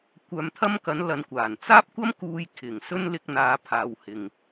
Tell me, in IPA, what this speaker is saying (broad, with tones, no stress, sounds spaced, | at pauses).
kʷ œː˧ m t̪ʰ ɐ˥ m k ɐ˨˥ n l ɐ˨˧ n kʷ aː˨˩ n t͡s aː˥ p̚ kʷ ɐ˥ m k uː˧ j kʰ ɪ˨˩ ŋ s ɵ˥ n l ɪ˧ k̚ n̪ aː˨˧ pʰ aː˨˧ w h ɪ˨ ŋ